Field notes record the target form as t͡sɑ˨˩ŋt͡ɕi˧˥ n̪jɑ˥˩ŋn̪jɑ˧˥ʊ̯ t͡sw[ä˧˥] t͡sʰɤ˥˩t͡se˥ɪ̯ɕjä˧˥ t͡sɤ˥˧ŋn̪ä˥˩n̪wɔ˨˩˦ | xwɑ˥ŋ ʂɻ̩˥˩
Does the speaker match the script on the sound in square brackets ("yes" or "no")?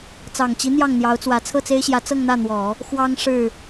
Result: yes